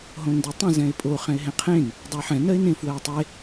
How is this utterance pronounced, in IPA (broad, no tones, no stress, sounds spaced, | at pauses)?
ɦ õ n d ɜ tˤ ə̃ z ɛ̃ ɪ̯ pʼ o χ ɛ̃ ɪ̯ ɦ ẽ qʰ ẽ n | dˤ ə ɪ̯ ħ ɛ̃ n ɜ ɪ̯ n ẽ f w ɜ ʊ̯ tˤ e